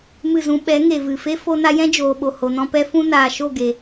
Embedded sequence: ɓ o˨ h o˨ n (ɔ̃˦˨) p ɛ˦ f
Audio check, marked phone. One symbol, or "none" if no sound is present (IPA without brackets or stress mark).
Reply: ɔ̃˦